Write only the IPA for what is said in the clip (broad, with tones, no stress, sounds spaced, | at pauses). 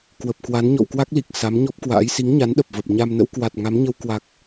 k w ə˨˩ p̚ k w a˨˦ n ɲ ɔ̰˧˨ w k w a˦˥ k̚ l i˨˩ k̚ s a˨˦ m ɲ ɔ˦˥ p̚ k w a̰ː˧˥ j s i˨˦ ŋ ɲ a˨˦ n ɗ ə˨˩ p̚ v ə˨˩ p̚ ɲ a˧ m n ə̰˧˥ w k w a˨˩ t̚ ŋ a˨˦ m ɲ ə˧ w k w a˨˩ k̚